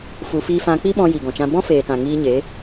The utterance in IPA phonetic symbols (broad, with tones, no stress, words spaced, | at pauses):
fu˧ fiː˧fã˧k͡pi˦ɓɔ̃˧ ji˨ɡɔ̃˨t͡ʃã˧ bɔ̃˦feː˨tã˨ ŋiː˧ɲe˨˦